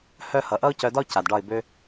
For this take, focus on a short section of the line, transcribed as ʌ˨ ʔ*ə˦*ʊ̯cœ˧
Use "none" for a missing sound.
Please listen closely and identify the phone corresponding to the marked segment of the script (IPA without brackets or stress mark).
ʌ˦